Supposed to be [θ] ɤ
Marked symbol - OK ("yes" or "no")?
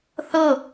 yes